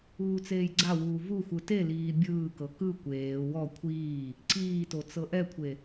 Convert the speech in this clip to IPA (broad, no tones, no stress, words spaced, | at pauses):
uːt͡seːjɡ͡ǀawuː vuxʷɯ teliː bʲɯːkɤ kɯ kʷeː wɔ kʷʰiː | ǀiːto t͡sɤʔɛkʷʰe